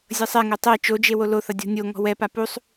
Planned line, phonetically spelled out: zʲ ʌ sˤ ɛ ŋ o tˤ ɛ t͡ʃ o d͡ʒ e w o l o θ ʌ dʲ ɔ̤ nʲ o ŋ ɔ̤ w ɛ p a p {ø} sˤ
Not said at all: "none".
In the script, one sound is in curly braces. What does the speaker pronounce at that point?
u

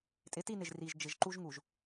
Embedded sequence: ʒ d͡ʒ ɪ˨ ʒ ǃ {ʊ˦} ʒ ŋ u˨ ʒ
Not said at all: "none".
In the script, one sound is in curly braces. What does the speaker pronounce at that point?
u˦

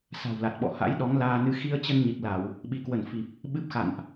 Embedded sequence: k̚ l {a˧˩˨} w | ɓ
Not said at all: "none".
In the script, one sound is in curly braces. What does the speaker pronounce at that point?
a˧˩˨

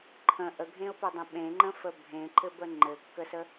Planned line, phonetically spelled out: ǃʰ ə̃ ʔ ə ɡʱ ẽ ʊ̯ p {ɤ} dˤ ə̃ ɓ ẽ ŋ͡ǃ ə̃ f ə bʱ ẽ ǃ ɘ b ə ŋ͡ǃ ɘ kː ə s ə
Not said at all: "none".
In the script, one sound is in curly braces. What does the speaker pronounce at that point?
ɤ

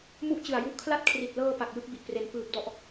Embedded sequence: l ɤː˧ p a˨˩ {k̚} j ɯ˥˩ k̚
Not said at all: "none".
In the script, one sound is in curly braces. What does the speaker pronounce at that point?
k̚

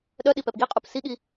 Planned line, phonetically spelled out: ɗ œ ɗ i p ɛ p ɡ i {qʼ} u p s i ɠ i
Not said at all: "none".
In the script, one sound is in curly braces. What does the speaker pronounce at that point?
qʼ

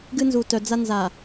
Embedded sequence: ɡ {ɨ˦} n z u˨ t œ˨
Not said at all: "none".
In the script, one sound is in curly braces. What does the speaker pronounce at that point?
ɨ˦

